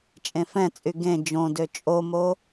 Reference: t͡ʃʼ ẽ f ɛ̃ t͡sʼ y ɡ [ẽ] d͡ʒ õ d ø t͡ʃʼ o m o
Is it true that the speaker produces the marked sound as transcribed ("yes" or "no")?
yes